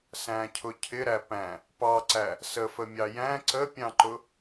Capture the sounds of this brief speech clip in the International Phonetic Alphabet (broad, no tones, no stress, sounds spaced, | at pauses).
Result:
s æ̃ cʰ ʊ cʰ ɪ ɾ æ p æ̃ | p ɑ ǀ æ | s ə f ə mʲ ɑ j æ̃ ǀ ə pʲ ɑ̃ ǃ ʊ